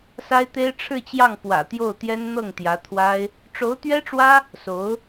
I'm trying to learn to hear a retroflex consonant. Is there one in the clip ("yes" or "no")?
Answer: yes